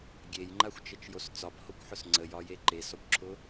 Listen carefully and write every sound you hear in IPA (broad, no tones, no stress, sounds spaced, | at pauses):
ɡʲ e j ŋ͡ǃ a xʷ t͡ʃ ə t͡ʃ j o s t͡s ɒ b h o kʷ ħ ʊ s ŋ͡ǀ ə j ɒ j e ǃ e s ɔ kʷ ǁʰ ʊ